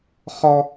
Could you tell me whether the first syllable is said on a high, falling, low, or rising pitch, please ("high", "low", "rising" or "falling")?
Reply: high